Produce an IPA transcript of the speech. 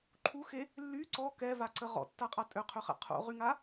ǃʰuxe | lːy ǀɔ kɛvaǀə ʁɔ̰tːaqʼa tʼøqʰøχɛ̰ qʰo̰ʁyŋa

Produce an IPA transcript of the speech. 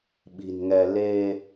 ɓi̤˨˩nŋɛ˧ le˧

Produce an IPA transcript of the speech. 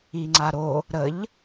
iŋ͡ǀaɾo | ɾəʎ

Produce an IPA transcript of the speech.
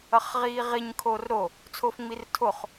ʌχʁiːʁiɲ kʰorɾo | t͡sʰofŋ͡mirtʰoχ

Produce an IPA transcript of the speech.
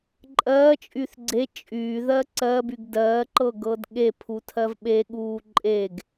ǃʼɜːt͡ʃʼyθ ɡ͡ǀe t͡ʃʼyːðɜ ǀɜbyɡ dɜːǃɤɡɤd ɠepʰutʰɜv ɓeɠuː ǃʼeɡ

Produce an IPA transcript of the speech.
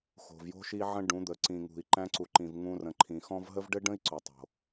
xo̤˨vjo̤˦ʃi˦ʕə̃˦ ɖũ˨˦d̪ə˨ ǀĩ˨ŋṳ˨i̯ ǃæ̃˧ǀu˨ǃĩ˨v ŋũ˧rə̃˨ǃʰĩ˨xɔ̃˦v ɦə˦vɖɘ˦ɖə̃˦i̯ ǀo˨tˤo̤˨

